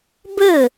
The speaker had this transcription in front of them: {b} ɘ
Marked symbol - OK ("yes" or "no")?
yes